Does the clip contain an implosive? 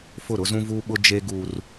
yes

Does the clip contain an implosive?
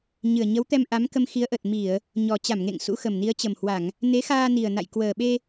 yes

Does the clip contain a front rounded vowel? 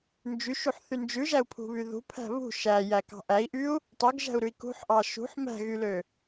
yes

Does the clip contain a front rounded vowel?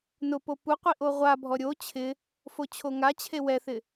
no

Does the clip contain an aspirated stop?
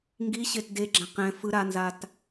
no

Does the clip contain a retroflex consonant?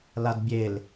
no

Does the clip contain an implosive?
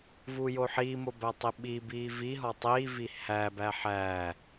yes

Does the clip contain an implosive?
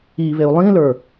no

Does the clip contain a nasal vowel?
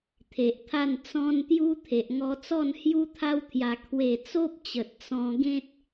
yes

